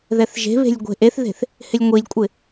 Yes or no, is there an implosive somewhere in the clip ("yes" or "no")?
no